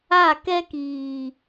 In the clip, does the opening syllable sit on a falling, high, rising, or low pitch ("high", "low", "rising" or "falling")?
falling